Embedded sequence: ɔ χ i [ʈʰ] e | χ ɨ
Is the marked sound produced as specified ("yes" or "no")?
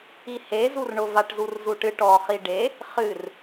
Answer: no